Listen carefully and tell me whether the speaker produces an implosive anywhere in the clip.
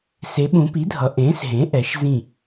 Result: yes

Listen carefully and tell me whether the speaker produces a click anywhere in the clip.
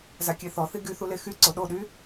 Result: yes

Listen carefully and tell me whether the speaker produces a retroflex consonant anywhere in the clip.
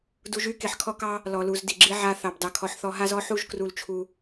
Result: no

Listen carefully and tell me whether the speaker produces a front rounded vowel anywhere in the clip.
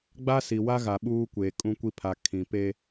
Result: no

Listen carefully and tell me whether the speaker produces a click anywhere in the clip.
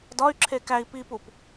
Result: yes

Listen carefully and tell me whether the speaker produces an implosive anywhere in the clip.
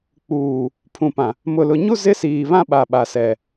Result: yes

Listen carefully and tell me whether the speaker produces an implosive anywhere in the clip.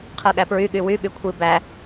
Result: yes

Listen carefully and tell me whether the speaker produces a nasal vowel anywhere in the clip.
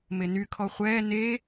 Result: no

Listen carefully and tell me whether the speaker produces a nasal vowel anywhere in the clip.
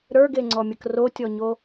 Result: no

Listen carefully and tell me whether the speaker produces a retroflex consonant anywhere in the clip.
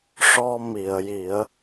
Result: yes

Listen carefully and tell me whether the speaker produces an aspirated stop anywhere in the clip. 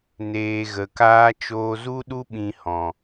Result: no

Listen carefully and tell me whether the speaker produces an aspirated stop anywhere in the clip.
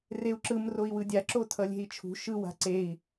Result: yes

